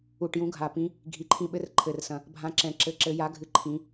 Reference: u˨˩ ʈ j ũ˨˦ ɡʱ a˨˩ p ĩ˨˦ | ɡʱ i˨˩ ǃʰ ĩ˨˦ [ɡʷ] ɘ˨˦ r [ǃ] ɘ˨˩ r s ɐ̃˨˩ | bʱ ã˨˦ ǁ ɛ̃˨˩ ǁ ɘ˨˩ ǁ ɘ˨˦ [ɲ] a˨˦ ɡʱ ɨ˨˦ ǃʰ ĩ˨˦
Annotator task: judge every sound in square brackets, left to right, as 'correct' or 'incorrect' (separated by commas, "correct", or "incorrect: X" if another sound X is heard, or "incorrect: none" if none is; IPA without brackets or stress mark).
incorrect: ɓ, incorrect: ǃʰ, incorrect: j